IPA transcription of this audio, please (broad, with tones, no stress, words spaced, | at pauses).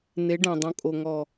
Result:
ne˨˦ɖæ̃˨dˤõ˨kʼo˨ ŋɔ˨